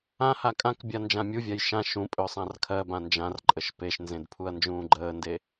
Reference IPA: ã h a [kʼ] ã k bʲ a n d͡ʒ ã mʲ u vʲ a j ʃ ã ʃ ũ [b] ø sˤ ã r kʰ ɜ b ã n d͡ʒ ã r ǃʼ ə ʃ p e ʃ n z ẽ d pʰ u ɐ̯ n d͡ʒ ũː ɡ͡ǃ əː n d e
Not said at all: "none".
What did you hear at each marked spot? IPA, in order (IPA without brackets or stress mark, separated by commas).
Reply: kʼ, pʼ